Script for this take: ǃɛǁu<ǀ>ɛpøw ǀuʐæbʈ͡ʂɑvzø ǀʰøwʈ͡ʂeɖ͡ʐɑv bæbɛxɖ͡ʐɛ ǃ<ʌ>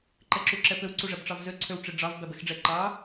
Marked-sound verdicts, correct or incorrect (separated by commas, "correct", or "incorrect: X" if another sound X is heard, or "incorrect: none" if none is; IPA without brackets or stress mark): incorrect: ǁ, incorrect: ɑ